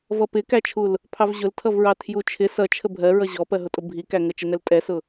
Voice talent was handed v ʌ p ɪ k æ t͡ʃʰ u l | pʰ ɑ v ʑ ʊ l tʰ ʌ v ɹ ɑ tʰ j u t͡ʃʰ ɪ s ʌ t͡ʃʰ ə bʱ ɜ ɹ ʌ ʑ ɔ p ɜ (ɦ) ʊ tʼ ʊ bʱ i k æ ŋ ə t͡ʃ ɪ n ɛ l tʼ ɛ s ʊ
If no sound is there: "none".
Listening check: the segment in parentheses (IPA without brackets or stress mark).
ɦ